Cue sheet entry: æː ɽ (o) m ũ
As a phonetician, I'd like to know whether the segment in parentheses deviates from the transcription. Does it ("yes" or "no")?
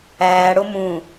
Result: no